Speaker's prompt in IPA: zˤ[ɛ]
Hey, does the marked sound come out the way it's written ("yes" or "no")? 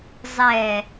yes